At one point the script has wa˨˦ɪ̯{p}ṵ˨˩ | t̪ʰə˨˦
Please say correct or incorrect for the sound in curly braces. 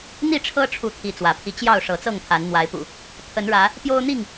correct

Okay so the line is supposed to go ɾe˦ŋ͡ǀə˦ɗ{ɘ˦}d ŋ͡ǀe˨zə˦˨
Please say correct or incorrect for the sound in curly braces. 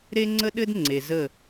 correct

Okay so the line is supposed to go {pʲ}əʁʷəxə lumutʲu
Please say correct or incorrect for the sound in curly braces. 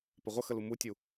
incorrect: p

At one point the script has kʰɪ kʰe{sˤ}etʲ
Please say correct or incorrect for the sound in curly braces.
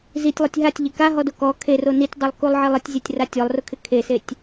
incorrect: s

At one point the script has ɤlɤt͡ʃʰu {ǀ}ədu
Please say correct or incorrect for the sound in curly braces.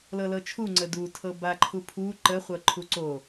incorrect: ŋ͡ǀ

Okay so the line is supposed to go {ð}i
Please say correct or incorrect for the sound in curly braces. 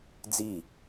incorrect: d͡z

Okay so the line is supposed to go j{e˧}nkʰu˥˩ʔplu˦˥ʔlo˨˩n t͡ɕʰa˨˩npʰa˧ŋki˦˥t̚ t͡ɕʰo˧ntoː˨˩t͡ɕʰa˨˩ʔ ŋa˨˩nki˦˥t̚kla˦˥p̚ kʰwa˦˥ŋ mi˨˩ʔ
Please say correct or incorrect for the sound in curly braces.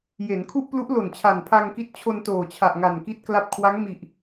incorrect: e˩˦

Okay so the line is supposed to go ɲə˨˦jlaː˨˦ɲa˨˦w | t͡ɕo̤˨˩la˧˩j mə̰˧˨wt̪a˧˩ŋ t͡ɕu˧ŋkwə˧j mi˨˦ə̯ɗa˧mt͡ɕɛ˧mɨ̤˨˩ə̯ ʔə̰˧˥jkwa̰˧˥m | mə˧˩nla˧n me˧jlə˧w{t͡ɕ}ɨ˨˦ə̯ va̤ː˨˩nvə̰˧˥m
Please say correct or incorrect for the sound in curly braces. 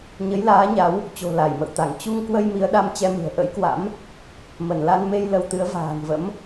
incorrect: t̪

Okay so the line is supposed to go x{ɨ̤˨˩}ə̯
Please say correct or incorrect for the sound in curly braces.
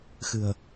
correct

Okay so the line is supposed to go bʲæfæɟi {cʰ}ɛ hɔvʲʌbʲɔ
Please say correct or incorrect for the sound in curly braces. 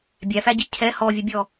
correct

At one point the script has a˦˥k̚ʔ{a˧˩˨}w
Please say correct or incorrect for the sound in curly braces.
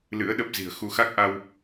incorrect: a˧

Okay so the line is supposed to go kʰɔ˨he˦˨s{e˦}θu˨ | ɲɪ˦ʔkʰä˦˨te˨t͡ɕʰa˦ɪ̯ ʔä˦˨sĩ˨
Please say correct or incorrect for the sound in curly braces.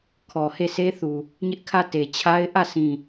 correct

